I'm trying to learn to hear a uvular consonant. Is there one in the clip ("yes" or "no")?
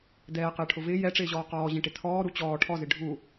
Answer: yes